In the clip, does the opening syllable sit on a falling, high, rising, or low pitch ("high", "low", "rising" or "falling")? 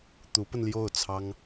rising